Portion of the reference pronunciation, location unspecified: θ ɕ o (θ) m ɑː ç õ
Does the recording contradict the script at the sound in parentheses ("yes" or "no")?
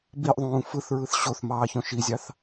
no